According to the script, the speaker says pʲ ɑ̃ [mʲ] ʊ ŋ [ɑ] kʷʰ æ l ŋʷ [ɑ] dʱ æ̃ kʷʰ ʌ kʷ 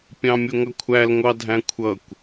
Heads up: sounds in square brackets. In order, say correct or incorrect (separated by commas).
correct, incorrect, correct